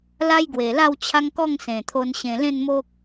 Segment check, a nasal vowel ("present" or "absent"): present